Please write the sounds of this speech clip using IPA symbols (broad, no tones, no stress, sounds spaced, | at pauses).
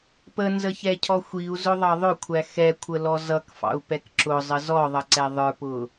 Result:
p ə n z ə ç ɛ cʰ ɔ xʷ i u̯ z ʊ ðˤ ɑ ðˤ ʊ kʷʰ æ x ɛ kʷʰ ə l ɔ z ʌ k f ɑ̰ u̯ p ɛ k ǁ ʊ zˤ ə z ɔ ðˤ ʌ ǀ ɛ ðˤ ə˞ p ʊ